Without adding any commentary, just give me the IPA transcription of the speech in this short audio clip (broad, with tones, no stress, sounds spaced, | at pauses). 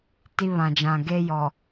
t i˦ β ã˨ d͡ʒ ã˨ ɡ e˦ j ɔ˨